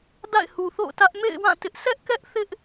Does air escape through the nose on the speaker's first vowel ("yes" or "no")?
no